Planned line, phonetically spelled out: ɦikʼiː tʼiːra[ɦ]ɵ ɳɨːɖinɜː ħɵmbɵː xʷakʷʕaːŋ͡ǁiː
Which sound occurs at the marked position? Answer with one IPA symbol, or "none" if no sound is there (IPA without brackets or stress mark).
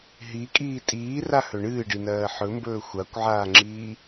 h